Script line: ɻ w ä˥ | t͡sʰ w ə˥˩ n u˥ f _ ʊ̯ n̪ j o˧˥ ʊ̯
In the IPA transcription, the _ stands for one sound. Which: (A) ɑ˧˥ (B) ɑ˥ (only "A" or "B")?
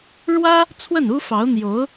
A